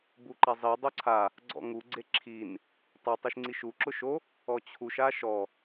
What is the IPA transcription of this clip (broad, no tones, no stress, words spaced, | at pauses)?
buǃazˤi dˤoǀʰa | ɡ͡ǀɔ̰ŋu ɡ͡ǀeǁʰin | tˤa tˤiʃŋ͡ǀiʃu ǁʊʃo | ɔt͡ɕʰuʃ aʃɔ